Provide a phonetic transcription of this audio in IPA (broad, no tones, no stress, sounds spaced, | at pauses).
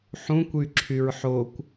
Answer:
ħ ũ kʷ y ǁʰ y ɹ ħ o kʷ